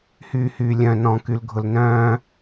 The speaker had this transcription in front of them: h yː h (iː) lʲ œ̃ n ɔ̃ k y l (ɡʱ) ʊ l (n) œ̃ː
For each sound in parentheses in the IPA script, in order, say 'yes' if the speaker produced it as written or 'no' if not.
no, yes, yes

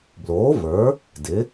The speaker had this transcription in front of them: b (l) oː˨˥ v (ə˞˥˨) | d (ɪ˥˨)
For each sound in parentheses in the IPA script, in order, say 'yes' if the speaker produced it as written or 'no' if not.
yes, no, no

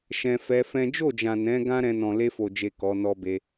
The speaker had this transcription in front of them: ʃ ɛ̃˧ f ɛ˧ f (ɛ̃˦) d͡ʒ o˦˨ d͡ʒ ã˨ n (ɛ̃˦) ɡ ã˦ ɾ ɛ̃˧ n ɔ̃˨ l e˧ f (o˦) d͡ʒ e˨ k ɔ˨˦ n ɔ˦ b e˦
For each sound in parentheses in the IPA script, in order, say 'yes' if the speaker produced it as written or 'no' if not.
yes, no, no

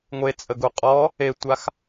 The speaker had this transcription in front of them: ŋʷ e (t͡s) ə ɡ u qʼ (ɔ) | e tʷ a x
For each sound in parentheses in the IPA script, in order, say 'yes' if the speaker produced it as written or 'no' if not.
no, yes

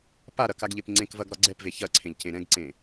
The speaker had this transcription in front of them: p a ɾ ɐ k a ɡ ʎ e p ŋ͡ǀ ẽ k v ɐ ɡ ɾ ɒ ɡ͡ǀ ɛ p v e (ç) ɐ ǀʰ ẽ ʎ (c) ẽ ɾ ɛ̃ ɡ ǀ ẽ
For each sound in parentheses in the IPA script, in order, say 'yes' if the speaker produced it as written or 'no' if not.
yes, yes

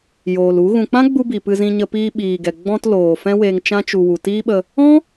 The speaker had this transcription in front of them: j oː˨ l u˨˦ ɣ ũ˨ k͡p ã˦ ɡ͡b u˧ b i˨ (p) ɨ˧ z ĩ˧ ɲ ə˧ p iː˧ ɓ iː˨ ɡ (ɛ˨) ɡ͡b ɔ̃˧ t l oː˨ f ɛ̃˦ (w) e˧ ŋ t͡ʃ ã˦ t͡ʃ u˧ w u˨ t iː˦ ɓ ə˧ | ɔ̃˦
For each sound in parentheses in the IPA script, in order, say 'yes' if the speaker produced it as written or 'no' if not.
yes, yes, yes

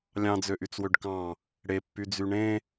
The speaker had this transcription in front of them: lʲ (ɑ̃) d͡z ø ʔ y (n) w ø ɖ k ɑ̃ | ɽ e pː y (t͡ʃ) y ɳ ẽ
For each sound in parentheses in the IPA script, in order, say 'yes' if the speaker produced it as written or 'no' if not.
yes, no, no

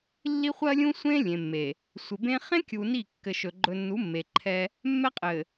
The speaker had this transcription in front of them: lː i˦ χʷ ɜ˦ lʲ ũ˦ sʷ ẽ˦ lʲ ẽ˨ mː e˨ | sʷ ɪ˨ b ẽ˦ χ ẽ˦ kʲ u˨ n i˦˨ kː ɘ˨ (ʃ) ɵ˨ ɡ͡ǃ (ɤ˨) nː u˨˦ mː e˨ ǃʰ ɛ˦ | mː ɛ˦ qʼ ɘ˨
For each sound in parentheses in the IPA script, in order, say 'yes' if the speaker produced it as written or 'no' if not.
yes, no

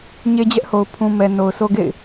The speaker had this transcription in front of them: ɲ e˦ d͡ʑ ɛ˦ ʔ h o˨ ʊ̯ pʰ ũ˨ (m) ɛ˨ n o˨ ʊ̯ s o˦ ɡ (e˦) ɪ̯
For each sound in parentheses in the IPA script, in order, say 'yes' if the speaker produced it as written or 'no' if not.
yes, no

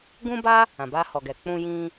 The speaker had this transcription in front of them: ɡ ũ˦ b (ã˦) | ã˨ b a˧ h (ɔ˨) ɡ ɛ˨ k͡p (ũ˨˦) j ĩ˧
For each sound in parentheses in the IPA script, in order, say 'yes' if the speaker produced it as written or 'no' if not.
no, yes, no

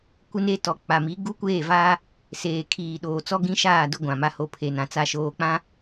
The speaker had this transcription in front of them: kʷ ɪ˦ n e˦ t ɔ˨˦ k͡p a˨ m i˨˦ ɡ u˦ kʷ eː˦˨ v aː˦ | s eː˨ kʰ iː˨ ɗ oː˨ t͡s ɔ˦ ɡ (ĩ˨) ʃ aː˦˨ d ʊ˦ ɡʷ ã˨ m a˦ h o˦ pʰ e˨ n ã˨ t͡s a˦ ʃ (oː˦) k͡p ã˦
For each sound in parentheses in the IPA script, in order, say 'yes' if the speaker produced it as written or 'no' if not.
no, yes

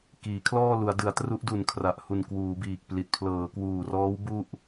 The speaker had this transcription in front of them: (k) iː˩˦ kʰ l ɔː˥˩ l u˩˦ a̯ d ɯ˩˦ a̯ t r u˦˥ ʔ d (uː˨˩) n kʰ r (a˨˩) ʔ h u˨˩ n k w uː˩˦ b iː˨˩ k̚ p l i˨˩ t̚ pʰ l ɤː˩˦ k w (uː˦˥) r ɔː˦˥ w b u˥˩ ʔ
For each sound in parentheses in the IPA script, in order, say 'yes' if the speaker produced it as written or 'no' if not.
yes, no, yes, no

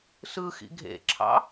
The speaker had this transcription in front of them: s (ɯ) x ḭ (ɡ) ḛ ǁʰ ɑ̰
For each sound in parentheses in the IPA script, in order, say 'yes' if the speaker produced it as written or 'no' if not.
yes, no

